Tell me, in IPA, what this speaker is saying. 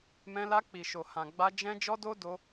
m ɛ̃˧ l a˧ k͡p i˨ ʃ o˨ h ã˨ ɡ͡b a˧ d͡ʒ ɛ̃˦ d͡ʒ ɔ˦ d o˦ d o˧

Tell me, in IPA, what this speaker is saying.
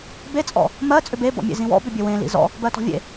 b e t͡sʼ ɔ̰ | m ɜ t͡sʼ ʏ b e b ɔ̰ mʲ ḛ z ĩ w ɔ̰ b ʏ bʲ ø w ẽ l ḭ z ɔ̰ | b ɜ t ɔ̤ vʲ ḛ

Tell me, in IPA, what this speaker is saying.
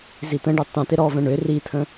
z i t̪ ə̃ ɖ ʏ tˤ ũ t̪ ɪ ɾ ɔ v ə̃ ɳ ʏ r i t̪ʰ ə̃

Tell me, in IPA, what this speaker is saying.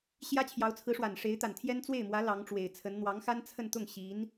ɕ j ä˥ t͡ɕʰ j ɑ˧˥ ʊ̯ t͡sʰ ɹ̩˧˥ ʂ w a˨˩ n ʂ e˧˥ ɪ̯ t̪ a˨˩ n t̪ʰ j ɛ˥ n t͡s w e˥˩ ɪ̯ m w ä˧˥ l ɑ˧˥ ŋ ʈ͡ʂ w e˨˩ ɪ̯ t͡sʰ ə˧˥ n n̪ w ɑ˧˥ ŋ x a˥ n t͡sʰ ə˥˧ n t̪ ʊ˥˩ ŋ ɕ i˧˥ n

